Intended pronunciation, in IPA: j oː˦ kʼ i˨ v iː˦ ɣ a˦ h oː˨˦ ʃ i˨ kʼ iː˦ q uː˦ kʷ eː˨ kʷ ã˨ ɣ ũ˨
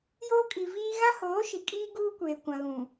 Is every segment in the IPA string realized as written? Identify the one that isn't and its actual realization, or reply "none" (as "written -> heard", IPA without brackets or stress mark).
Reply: q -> ɡ